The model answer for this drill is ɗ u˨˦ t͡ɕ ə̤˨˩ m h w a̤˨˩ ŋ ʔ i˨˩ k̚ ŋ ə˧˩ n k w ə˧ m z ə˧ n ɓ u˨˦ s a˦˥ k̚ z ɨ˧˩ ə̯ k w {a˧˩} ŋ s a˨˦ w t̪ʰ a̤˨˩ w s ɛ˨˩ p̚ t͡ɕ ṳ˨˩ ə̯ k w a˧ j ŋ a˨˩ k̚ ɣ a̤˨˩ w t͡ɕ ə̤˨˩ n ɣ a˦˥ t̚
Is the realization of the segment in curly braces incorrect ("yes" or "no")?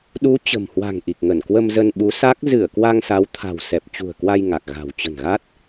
yes